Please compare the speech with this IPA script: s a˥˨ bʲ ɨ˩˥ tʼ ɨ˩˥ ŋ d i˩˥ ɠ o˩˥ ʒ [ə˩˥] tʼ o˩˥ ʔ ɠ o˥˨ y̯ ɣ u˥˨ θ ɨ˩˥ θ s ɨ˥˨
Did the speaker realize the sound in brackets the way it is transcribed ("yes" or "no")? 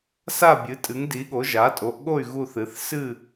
no